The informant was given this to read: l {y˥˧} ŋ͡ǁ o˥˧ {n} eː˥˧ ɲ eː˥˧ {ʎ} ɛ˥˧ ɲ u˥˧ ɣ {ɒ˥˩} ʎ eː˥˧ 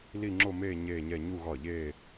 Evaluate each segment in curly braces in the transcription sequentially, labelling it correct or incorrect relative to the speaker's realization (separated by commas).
incorrect, incorrect, incorrect, correct